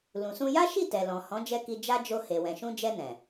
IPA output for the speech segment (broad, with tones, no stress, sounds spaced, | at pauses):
l ũ˨ s ũ˧ j a˦ ʃ i˦˨ t ɛ˨ l ɔ̃˨ h ɔ̃˨˦ d͡ʒ ɛ˧ k i˧ d͡ʒ a˦ d͡ʒ o˧ h e˨ w ɛ̃˨ ʃ ũ˧ d͡ʒ ɛ˧ n ɛ̃˨